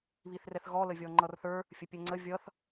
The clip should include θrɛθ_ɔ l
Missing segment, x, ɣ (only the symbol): ɣ